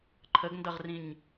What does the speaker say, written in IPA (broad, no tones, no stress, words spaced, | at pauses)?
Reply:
ǃʰəɡndʌʁrĩɲ